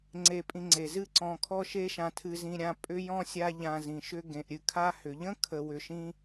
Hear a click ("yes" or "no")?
yes